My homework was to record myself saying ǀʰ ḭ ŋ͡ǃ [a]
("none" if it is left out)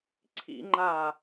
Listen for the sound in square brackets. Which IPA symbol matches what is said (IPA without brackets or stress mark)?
aː